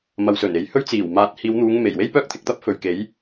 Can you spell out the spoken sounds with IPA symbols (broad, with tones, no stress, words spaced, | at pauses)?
mɐ˨wsɵ˨˩n e˨jhɵ˥ɥt͡siː˨˩w maː˨˥t̚hiː˨˧wn̪uː˨˧ŋ me˨˩jwe˥jpœː˥k̚ t̪ʰɪ˧k̚t̪ɐ˥p̚fɵ˨ɥke˨˥j